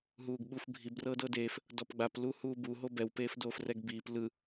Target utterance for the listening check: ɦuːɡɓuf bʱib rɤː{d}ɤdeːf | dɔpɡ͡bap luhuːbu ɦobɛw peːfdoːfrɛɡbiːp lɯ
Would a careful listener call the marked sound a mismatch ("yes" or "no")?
no